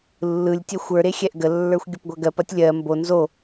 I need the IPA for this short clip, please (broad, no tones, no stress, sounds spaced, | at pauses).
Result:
lː ɯ lʲ tʲ ɛ xʷ ə˞ ɾ e xʲ ɛ ʔ ɡ ə lː ə˞ xʷ ɡʲ ə p ɡʷ ɐ ɡ ɜ p ɐ tʲ lʲ ɜ m b o n z o